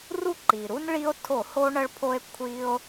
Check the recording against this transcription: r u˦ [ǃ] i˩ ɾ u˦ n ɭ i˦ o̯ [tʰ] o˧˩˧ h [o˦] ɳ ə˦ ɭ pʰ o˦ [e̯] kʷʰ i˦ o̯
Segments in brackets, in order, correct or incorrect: correct, correct, correct, correct

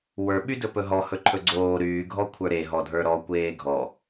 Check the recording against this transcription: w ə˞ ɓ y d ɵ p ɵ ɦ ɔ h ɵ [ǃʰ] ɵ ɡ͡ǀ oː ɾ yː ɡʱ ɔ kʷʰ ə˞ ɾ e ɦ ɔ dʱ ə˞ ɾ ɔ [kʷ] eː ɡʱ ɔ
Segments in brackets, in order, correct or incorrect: correct, correct

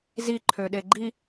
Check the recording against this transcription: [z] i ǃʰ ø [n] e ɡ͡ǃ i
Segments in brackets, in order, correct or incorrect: correct, incorrect

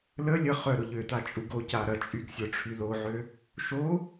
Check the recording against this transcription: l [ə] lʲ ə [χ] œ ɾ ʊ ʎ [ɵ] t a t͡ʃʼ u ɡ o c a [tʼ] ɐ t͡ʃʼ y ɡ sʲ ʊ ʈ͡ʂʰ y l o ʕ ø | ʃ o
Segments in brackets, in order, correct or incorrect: correct, correct, incorrect, incorrect

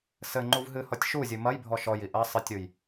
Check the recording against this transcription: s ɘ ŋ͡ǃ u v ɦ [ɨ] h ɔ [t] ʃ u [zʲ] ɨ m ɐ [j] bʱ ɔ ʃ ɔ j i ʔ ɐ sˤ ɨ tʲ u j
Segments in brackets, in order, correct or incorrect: correct, incorrect, correct, correct

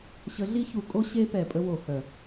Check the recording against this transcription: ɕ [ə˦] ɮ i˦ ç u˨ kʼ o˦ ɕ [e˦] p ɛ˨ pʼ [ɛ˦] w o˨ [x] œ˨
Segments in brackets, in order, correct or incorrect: incorrect, correct, incorrect, correct

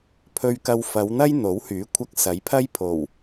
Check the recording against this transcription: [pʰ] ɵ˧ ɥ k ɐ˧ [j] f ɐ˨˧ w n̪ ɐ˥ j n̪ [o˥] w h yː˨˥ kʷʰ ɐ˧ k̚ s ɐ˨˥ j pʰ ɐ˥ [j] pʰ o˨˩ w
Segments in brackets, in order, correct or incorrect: correct, incorrect, incorrect, correct

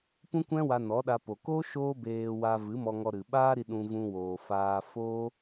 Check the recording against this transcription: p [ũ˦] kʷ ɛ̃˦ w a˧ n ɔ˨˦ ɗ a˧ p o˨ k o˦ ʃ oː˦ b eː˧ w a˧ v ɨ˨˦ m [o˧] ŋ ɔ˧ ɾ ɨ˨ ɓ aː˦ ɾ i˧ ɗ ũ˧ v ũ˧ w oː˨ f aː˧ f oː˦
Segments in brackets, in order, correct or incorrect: correct, incorrect

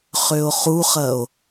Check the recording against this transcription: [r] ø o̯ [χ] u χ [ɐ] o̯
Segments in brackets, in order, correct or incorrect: incorrect, correct, correct

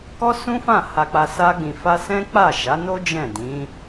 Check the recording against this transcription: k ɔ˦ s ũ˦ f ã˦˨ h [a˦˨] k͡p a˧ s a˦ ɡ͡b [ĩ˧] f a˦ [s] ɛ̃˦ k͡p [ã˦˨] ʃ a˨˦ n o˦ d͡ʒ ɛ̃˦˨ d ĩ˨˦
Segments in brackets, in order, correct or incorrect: incorrect, correct, correct, incorrect

